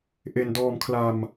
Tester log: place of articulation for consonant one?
glottal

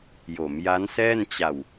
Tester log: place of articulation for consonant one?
palatal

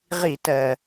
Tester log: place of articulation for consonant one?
uvular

